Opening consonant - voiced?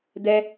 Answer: yes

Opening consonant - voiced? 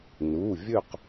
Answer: yes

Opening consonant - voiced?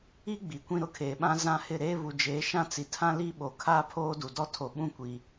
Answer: yes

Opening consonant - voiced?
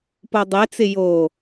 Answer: no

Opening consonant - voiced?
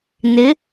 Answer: yes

